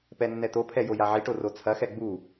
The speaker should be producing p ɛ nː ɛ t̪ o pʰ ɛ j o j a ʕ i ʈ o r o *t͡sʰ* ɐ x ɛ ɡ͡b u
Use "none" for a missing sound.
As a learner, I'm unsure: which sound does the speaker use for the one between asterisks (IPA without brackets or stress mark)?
t͡sʰ